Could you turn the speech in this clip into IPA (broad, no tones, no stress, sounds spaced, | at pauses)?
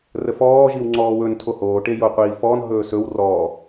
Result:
r ə f ɔː ʒ i w ŋ͡ǀ ɔː w ɵ n tʰ o h oː ʈ e j o qʷ iː f ɔː n ɦ ɵː s ɵ w r ɔː